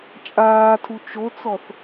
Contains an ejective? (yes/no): yes